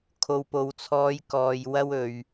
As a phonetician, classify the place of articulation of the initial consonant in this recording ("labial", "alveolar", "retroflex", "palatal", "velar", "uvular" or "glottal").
velar